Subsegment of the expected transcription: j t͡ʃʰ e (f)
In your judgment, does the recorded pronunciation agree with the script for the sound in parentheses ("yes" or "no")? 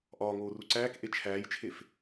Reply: yes